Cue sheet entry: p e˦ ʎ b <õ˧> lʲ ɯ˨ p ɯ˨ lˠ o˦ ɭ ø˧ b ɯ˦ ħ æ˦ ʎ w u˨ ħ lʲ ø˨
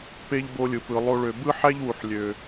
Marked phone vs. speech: incorrect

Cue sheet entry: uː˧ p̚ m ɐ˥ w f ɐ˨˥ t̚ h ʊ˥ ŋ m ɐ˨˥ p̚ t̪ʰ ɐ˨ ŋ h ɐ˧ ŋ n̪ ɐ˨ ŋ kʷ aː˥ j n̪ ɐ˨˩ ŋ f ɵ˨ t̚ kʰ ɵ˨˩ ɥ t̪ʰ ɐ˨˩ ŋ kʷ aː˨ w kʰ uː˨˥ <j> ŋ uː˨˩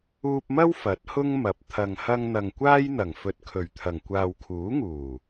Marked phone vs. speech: incorrect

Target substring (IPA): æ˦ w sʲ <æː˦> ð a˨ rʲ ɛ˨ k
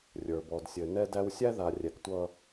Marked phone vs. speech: incorrect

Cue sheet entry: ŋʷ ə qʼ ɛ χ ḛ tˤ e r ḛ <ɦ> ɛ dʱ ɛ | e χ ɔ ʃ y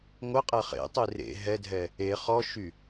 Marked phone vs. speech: correct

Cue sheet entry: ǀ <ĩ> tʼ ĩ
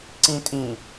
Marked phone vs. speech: correct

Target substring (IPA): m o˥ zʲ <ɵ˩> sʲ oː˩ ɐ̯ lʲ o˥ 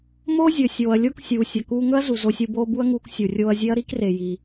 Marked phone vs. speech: correct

